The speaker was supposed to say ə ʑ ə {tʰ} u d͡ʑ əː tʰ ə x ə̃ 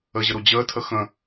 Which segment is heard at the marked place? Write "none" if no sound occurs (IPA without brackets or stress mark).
ɾ